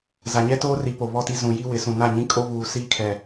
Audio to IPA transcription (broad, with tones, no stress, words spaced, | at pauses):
za˨ɲɛ˦toː˦ri˨ po˨βɔ˦˨ti˦ zũ˨ ji˦wɪ˨˦sũ˨ na˦˨ɲĩ˦kʼo˦ βuː˨siː˦kʰɛ˨